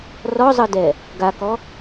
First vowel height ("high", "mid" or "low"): mid